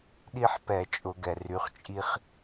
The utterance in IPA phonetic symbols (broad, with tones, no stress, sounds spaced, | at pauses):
ɗ i˦ ħ p ɛ˧˩˧ t͡ʃʼ ʊ˧˩˧ ɡ ɛ˩ r y˩˥ χ t͡ʃʼ i˦ χ